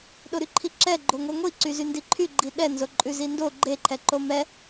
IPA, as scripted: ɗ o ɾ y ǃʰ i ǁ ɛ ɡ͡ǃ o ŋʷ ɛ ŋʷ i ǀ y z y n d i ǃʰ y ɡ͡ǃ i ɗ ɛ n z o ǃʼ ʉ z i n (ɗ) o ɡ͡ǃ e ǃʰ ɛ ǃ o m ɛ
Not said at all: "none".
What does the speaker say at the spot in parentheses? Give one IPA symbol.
d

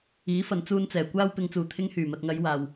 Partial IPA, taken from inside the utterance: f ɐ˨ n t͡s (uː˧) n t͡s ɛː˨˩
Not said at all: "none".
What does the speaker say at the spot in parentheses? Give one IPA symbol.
uː˧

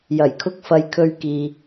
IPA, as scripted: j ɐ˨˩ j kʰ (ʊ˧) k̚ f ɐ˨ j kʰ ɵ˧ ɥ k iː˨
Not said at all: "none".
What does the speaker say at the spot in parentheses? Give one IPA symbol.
ʊ˧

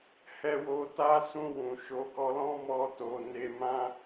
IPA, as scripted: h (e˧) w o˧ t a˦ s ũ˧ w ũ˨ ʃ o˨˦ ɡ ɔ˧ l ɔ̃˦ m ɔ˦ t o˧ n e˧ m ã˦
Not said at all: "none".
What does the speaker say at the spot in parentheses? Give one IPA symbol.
ɛ˧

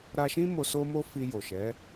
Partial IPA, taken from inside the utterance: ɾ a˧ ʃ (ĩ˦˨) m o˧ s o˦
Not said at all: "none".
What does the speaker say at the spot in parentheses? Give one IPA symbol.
ĩ˦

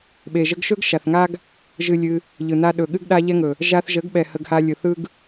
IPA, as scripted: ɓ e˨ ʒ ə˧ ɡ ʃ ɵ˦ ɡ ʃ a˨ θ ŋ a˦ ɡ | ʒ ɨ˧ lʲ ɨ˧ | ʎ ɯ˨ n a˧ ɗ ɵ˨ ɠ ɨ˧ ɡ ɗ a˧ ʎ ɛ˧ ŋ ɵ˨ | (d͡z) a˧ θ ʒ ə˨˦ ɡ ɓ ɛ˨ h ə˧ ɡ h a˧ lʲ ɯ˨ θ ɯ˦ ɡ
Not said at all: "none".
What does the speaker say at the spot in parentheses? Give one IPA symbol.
ʒ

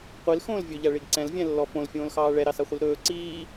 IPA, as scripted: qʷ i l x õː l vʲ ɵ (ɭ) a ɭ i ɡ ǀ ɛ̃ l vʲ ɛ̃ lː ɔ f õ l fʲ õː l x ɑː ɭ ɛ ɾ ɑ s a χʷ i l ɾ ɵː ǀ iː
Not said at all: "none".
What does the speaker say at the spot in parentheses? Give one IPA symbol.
ʎ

